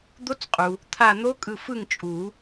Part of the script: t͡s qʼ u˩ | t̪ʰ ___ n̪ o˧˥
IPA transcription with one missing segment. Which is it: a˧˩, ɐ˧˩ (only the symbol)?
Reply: a˧˩